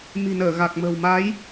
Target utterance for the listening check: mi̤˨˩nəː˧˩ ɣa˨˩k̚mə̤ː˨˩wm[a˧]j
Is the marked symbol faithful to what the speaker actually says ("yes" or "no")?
no